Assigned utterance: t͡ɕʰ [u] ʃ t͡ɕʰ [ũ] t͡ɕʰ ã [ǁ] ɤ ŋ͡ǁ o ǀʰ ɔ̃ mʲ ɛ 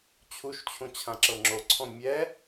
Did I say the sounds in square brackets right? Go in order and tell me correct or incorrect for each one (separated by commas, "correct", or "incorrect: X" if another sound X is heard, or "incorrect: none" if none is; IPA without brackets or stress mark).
correct, correct, correct